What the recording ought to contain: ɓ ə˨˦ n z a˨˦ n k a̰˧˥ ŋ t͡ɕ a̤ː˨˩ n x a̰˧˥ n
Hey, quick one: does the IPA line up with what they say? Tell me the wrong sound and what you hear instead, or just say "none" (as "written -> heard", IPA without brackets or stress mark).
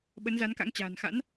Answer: none